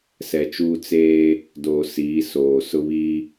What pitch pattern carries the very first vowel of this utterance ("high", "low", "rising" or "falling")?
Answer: low